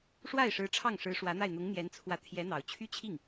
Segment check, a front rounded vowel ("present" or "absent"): present